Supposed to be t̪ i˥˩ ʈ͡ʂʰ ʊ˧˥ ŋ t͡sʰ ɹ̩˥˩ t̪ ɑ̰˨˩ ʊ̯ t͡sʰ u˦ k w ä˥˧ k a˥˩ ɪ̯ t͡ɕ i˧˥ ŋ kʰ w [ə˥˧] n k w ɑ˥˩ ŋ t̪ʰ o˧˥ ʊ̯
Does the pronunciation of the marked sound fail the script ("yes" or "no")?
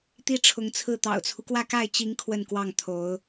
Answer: no